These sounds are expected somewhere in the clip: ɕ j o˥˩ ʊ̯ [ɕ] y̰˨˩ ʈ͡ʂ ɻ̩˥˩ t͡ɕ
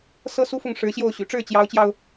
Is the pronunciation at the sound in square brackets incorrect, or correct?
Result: correct